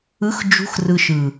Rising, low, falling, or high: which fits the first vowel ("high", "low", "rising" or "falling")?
rising